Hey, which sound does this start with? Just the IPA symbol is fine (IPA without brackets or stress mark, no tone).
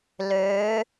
l